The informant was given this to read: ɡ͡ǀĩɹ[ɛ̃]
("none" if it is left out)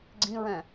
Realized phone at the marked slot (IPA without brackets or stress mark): ɛ̃